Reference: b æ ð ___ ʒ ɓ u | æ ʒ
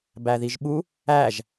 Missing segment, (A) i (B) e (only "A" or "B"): A